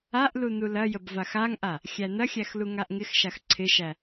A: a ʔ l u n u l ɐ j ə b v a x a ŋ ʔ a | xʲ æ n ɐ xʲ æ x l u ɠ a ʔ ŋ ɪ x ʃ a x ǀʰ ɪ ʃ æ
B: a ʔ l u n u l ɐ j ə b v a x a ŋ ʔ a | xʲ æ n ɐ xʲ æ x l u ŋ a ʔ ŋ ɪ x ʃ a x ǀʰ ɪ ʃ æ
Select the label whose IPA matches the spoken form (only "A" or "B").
B